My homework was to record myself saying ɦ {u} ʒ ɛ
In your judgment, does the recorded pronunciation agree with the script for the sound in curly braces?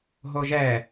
no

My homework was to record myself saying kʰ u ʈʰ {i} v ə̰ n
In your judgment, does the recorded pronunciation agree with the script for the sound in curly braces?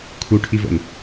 yes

